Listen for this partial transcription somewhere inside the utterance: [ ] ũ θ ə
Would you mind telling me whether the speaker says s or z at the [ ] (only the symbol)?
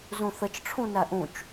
z